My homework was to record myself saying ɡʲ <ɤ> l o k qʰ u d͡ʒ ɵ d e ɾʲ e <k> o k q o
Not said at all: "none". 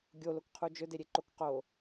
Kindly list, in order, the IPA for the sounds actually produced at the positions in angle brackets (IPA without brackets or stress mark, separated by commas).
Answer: o, ǃ